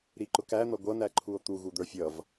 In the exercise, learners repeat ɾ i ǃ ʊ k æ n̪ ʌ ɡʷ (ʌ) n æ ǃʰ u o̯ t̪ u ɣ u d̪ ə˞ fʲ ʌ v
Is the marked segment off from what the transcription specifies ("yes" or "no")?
no